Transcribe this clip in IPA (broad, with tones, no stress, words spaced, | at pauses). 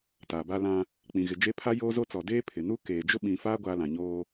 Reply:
taː˨ba˦lã˦ | k͡pĩ˨ɣɪ˨d͡ʒe˦ pʰa˦joː˦zo˦t͡sɔ˨ deː˦pʰɪ˨nuː˦ keː˨ d͡ʒʊ˦ɓĩ˨faː˦ ɡʷaː˦lã˨ɲoː˦